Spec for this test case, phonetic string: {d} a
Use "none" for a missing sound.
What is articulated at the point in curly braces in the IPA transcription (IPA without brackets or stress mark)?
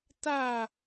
t